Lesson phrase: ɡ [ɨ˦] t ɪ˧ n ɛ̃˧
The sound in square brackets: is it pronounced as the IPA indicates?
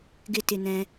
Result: no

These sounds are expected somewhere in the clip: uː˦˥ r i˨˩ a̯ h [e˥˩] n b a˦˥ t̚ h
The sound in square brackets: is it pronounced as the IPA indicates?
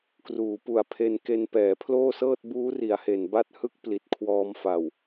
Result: no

